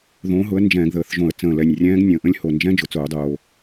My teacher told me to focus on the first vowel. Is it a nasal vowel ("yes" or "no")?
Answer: yes